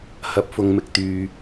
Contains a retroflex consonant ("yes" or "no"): no